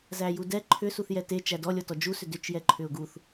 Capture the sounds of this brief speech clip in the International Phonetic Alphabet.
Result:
z æ j u d ɛ ǃʰ ʏ s u θ j ɛ t e t͡ʃ æ d ɔ lʲ ɔ t ɔ d͡ʒ u s ʏ d ʏ t͡ʃ j ɛ ǃʰ ʏ ʊ̯ ɡ u θ

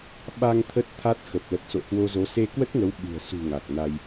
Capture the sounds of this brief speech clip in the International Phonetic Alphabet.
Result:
ɓ a˧ ŋ t̪ʰ ə˦˥ t̚ t̪ʰ a˦˥ t̚ x ə˨˩ p̚ l ə˨˩ t̚ s o̰˧˨ h w o˧ z o˨˦ s e˧ k w ə˦˥ t̚ ŋ ə˨˦ w ɓ ɨ̤˨˩ ə̯ s ṳ˨˩ ŋ a˨˩ k̚ n a˧ j

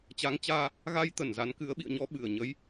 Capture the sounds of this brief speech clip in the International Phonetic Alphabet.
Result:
t͡ɕ a˨˦ ŋ t͡ɕ aː˧ | ɣ a˧ j t̪ ə˧˩ n z a˨˦ n k ɨ˨˦ ə̯ ɓ ḭ˧˨ ə̯ ɲ ɔ˧ ɓ ɨ˧˩ ə̯ ɲ ə˨˦ j

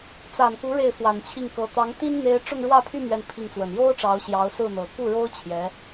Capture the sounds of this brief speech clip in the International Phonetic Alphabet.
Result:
t͡s a˨˩ n k u˧˥ ɻ e˥˩ ɪ̯ f w a˨˩ n t͡ɕʰ i˥˩ ŋ k ɤ˧˥ t̪ ɑ˧˥ ŋ t̪ i˥ n n̪ e˥ ɪ̯ ʈ͡ʂ ʊ˥˧ ŋ ɻ w ä˥˧ pʰ y˥˧ m ɥ ɛ˥˧ n pʰ i˥˩ ŋ t͡s w ə˨˩ n j o˥ ʊ̯ ʈ͡ʂ ɑ˧˥ ʊ̯ ɕ j ɑ˧˥ ʊ̯ s ɹ̩˥˩ n̪ ɤ˨˩ k u˥˩ ɻ o˥ ʊ̯ t͡ɕʰ j ɛ˧˥

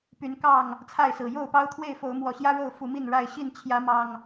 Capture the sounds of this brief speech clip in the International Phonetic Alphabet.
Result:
p y˨˦ n k ɑ˥˨ ŋ | t͡sʰ a˥˨ ɪ̯ s ɹ̩˨˩ j o˥˨ ʊ̯ p ɑ˦ ʊ̯ t̪ʰ w e˥˨ ɪ̯ f o˨˦ ʊ̯ m w ɔ˨˦ ɕ j ä˦ ɻ o˥˨ ʊ̯ f u˨˦ m i˥˨ n ɻ a˥˨ ɪ̯ ɕ i˥˨ n t͡ɕʰ j ä˨˦ m ɑ˨˩ ŋ

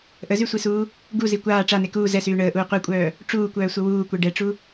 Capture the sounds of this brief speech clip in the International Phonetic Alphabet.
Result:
ʔ ə z y sʷ i s uː | ɡ u z i kʷ aː ʈ͡ʂ a n e k uː z ɛ s yː ɳ əː ʔ uː qʷ ɛ kʷʼ œː | ʈ͡ʂ uː kʷ œː sʷ ə w uː kʷ ɛ ɖ ɛ ʈ͡ʂ u

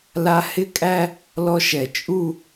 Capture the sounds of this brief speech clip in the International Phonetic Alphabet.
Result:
l a˥ h ɪ˥ kʼ æ˥ | l ɔ˥ ʃ ɛ˧˩ t͡ʃʼ u˥˧

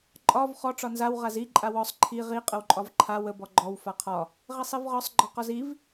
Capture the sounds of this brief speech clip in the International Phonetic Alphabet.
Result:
ǃʼ ɒ v χ ɔ ʈ͡ʂ ɒ n z a w ʁ a z i ǃʼ a w ɔ sˤ ǃʰ i ʁ i qʼ ə w ǃʼ ɒ v ǃʰ a w ə b ɔ ɡ͡ǃ ɔ w f a qʰ ɒ | ʁ i sˤ i v ʁ ɒ sˤ ɡ͡ǃ ɒ q ɒ z i v

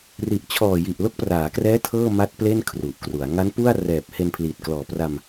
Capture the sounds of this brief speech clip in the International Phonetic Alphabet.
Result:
r i˨˩ ʔ t͡ɕʰ ɔː˨˩ j i˨˩ ʔ l o˦˥ k̚ p r aː˩˦ k r ɛː˦˥ tʰ ɤː˥˩ m a˦˥ t̚ p l e˥˩ n kʰ r u˨˩ ʔ k r u˩˦ a̯ ŋ a˦˥ n p u˥˩ a̯ r ɛː˨˩ p̚ h e˧ n pʰ l iː˨˩ t̚ k l ɔː˨˩ p r a˧ m

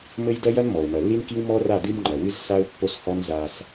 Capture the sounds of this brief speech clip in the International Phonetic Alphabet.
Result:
m ɘ˦ j d ɐ˦ j ɐ˦ n m ɔ˨ ʊ̯ m ɐ˨ lː i˦ n k i˦ w m ɔ˦ r a˦˨ d ɨ˦ m ŋ͡ǃ ɐ˨ w ɨ˦ z s a˦ ʊ̯ pː o˦ s h ɔ˦ n z a˦ s

